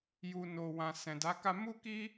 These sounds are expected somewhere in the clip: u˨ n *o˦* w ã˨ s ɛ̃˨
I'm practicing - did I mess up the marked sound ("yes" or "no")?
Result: yes